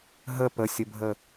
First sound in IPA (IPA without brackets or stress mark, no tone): ɦ